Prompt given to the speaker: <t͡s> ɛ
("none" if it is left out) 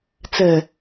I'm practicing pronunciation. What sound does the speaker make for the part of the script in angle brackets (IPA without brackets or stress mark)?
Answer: t͡s